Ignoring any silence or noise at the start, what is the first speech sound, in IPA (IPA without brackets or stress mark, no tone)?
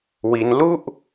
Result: w